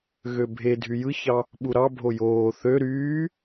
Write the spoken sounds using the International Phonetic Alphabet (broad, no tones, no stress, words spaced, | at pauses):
ɣøbʱe dʱyjɯçɑ | ɓuɾɑ bʱojoː θø ɾyː